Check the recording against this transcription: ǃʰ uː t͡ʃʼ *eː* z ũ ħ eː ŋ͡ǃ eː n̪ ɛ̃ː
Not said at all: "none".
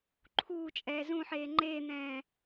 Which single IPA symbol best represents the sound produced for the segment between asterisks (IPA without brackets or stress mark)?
ɛː